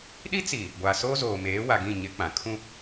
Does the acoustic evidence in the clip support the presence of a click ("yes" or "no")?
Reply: no